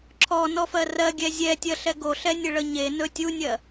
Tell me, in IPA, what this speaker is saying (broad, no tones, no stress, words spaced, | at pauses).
ǁʰɔnɔfɜ rɜɡʲɛ zʲɛtʲɜɬɛ ɡoɬɛnʲəɭə ɲenɵ tʲunʲɜ